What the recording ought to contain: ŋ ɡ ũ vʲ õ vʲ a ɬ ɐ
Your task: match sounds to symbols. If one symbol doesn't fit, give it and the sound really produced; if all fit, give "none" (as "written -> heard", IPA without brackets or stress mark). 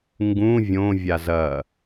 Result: ɬ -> z